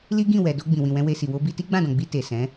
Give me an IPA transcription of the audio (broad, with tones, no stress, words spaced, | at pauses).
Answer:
li˦ɡĩ˦˨ wɛ˨ do˧ ɡ͡bĩ˨wĩ˨wɛ̃˧ we˧si˨ wo˧ bi˧ti˦ɡ͡bã˦˨dɔ̃˨ ɡ͡bi˧ te˨sɛ̃˨˦